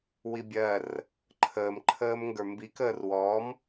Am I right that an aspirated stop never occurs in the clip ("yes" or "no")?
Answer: no